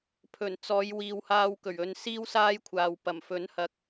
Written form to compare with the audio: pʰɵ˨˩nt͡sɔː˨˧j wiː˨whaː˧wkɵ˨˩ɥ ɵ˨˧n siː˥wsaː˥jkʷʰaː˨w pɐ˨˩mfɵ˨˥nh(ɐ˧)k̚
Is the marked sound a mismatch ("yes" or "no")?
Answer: no